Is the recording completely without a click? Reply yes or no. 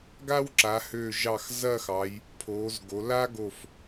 no